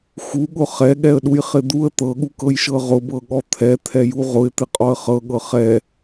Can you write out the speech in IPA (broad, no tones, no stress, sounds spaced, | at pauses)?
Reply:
x u ɠ ʊ χ ɛ ɠ ɛ ə̯ ɗ u j χ ɪ d̪ u ə̯ t̪ ɤ ɠ u k ɤ j ʃ ɤ ʁ ʊ b ɤ ɠ ɔ t̪ʰ ɛ t̪ʰ ɛ j u ʁ ʊ ɪ̯ t̪ ɪ qʼ ɔ ə̯ χ ɤ ɠ ɤ χ ɛ